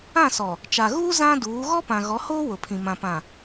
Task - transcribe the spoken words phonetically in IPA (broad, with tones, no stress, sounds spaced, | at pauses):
ã˦˨ s ɔ˨ | t͡ʃ a˨ ɣ uː˦ z ã˦ d uː˨˦ ɣ ɔ˦ p ã˨ ɣ ɔ˨˦ h oː˦ w ʊ˨ pʰ ĩ˨ m ã˨ p ã˨